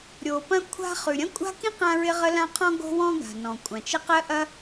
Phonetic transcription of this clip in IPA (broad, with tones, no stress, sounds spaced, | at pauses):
ɾʲ o˩ p ɐ̃˥ kʷʰ a̤˥ χ ʉ˩ ɾʲ ɐ̃˥ kʷʼ a̤˥ k ĩ˥ q ã˥ ɹ ɪ˥ ʁ ə˥ l ã˥ qʰ ɔ̃˥ ɡ o̤˥ w ɔ̃˥ ɡ a̤˩ n ɔ̃˩ kʷʼ ã˩ t͡ʃ ə˥ q ɜ˥ ʔ ɐ˥